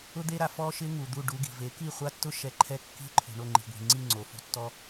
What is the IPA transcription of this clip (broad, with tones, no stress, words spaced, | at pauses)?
ʊ˥d̪e˥ɾa˧ fɔ˥ʃɪ˥ ŋu˩ d̪u˥˩ɖu˧ɡi̤˩ve˩˥ ki˥˩χʷa˥tːʊ˥ ʃɛ˧ǃʰɛ˥˩ kːi̤˥ǃʰṳ˩ ɳo˥˩ŋ͡ǃi̤˩ɡʷi̤˩ ŋ͡ǀi˥˩ŋ͡ǀo˩ fṳ˧tːɔ˧